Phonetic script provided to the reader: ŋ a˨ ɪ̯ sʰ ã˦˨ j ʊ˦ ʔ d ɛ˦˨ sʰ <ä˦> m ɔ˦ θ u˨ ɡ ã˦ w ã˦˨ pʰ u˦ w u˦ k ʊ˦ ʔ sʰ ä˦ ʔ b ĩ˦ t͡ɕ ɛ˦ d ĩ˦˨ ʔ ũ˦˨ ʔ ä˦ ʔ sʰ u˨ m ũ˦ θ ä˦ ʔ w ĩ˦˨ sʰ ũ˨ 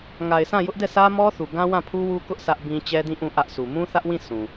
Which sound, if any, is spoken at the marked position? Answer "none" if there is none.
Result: ä˦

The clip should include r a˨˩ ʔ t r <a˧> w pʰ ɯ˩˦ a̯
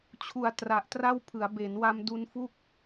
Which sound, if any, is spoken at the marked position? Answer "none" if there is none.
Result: a˥˩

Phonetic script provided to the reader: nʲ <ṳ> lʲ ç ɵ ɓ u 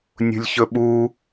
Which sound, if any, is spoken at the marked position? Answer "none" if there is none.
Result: ṳ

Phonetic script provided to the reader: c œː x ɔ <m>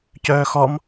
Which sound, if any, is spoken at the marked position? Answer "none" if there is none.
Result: m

